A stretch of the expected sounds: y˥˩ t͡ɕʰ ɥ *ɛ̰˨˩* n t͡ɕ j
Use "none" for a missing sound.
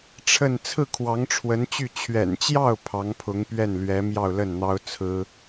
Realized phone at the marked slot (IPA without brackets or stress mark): ɛ̰˨˩